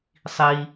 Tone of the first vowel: low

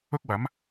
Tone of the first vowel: high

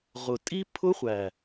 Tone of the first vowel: low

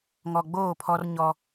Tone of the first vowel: low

